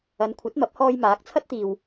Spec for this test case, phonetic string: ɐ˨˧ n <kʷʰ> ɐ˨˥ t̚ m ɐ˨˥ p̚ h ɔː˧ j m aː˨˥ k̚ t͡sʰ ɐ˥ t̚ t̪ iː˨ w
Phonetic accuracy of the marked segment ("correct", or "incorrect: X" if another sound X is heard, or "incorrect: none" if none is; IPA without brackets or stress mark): correct